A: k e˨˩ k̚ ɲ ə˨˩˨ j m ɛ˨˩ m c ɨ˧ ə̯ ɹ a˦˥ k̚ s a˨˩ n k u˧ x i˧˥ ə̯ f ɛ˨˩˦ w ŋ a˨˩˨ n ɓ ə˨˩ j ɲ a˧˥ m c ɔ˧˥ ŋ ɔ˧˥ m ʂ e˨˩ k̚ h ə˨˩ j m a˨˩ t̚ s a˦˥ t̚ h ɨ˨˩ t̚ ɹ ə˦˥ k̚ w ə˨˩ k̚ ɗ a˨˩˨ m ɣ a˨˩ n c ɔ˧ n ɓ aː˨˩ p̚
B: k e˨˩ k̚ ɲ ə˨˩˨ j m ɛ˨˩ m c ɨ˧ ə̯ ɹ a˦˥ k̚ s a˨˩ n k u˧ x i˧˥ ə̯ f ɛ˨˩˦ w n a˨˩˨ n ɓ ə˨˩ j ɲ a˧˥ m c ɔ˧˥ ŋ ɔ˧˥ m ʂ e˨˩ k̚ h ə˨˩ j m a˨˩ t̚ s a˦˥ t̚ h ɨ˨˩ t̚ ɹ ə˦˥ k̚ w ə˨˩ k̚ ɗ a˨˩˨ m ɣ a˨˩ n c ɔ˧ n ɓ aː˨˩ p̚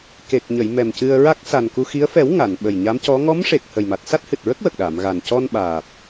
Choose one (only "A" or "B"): A